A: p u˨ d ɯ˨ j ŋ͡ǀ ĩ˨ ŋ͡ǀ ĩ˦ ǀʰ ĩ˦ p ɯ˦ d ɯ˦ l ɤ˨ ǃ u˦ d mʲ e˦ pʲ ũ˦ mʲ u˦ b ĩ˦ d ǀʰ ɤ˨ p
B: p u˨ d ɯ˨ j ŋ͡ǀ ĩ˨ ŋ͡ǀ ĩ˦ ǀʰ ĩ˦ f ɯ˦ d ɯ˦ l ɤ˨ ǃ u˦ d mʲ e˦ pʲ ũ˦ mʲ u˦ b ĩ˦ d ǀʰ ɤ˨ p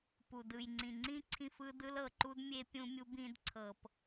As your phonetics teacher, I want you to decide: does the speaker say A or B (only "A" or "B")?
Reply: B